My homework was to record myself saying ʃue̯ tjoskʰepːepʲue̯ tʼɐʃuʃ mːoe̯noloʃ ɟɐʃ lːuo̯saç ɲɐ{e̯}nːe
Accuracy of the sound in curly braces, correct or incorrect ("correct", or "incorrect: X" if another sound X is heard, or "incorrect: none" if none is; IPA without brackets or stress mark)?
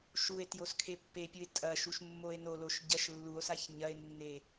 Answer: correct